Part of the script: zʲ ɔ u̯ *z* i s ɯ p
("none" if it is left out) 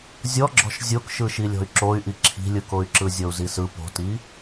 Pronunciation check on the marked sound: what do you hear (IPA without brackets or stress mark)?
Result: z